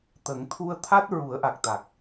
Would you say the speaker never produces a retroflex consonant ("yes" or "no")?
yes